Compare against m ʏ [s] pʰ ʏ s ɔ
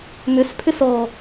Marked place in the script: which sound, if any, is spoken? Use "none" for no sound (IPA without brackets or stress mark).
s